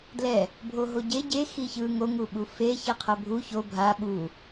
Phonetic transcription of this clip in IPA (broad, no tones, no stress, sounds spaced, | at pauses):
d l ɛ | bʱ o ɦ o ɟ e ɟ e x i ç ɯ ŋ o ŋ u ɓ u f e ç ɛ qʰ ʌ bʱ u ç o bʱ a ɓ u